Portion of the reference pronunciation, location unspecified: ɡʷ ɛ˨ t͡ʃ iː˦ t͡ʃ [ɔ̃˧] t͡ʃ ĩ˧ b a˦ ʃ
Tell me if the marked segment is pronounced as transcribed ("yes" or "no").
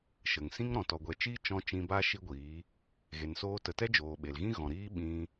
yes